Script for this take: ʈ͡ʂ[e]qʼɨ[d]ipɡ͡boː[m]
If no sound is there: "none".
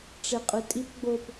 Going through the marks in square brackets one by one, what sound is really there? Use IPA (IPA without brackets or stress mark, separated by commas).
e, tʼ, p